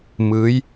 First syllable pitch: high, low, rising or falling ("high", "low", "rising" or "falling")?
rising